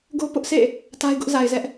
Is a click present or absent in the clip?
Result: absent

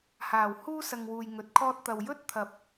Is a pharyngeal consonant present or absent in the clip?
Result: absent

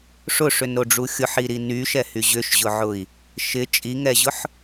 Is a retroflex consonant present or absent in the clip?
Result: present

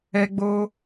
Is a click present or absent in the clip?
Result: absent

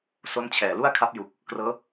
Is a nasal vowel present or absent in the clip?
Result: absent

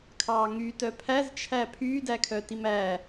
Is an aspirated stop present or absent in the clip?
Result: present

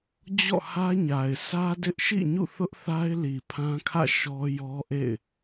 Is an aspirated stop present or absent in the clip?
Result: present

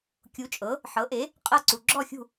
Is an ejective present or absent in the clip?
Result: present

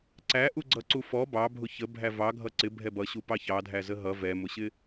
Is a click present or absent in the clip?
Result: present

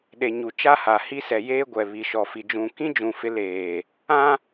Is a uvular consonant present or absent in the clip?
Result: absent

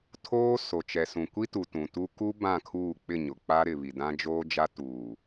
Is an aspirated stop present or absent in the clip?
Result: present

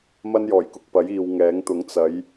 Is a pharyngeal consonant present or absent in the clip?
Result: absent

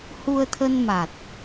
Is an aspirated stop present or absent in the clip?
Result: present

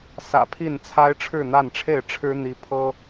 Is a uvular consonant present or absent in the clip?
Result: absent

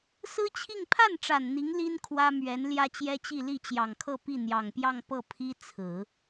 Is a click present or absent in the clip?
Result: absent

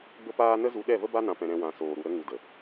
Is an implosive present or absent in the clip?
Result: present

